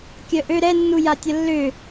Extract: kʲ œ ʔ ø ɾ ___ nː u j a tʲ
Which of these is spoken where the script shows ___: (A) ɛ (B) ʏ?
A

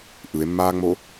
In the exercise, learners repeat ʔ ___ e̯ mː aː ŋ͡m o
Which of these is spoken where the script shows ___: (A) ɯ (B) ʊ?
A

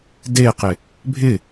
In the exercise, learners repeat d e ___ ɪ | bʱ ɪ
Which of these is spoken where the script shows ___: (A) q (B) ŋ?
A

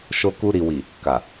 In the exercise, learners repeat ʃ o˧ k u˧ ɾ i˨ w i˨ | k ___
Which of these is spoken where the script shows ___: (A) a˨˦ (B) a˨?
B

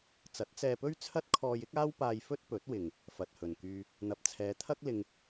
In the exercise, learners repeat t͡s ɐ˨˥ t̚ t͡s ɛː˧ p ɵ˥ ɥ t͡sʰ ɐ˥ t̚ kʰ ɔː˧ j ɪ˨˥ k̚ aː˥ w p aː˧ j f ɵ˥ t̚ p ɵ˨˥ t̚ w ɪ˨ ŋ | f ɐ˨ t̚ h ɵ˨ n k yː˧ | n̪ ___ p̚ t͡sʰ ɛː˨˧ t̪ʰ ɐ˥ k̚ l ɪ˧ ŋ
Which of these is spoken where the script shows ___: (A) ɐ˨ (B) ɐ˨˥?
A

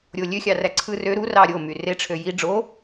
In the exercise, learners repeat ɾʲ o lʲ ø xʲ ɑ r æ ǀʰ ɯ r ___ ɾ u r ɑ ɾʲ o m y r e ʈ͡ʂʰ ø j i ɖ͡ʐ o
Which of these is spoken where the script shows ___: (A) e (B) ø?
B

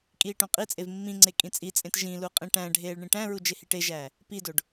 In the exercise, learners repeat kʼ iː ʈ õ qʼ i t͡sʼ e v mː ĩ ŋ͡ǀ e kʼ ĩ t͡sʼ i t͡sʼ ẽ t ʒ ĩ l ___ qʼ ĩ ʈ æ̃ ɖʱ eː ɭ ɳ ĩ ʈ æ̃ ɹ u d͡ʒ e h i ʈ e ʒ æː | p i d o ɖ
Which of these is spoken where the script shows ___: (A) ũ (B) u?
B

